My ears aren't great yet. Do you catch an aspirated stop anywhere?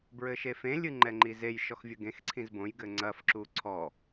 yes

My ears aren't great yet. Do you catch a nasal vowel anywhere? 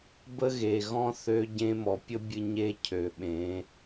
yes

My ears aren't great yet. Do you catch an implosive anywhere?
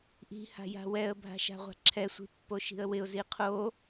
no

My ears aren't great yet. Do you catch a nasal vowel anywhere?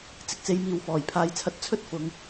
no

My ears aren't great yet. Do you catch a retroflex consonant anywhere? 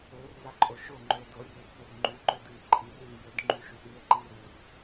no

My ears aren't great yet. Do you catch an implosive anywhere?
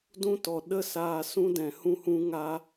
yes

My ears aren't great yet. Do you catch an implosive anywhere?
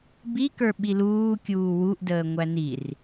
yes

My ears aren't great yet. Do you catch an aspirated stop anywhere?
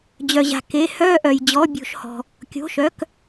no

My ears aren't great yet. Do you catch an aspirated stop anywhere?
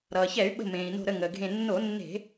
no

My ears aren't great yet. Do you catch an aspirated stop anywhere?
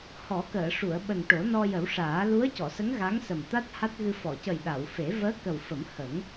no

